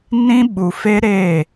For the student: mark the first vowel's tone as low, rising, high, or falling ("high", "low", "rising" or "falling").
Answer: high